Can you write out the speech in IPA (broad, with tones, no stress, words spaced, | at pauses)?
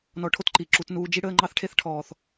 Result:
nɔ˧ʈʰo˦tǃi˨ǁu˧t nuː˧d͡ʒi˦ɽəː˦ ŋ͡ǃɑ˦θʈʰe˦θ ʈʰɔː˧θ